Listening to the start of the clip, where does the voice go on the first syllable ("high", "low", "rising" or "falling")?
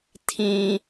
high